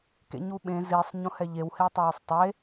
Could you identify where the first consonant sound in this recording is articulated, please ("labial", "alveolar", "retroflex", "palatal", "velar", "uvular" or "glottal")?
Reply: velar